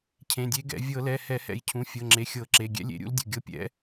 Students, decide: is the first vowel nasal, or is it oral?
nasal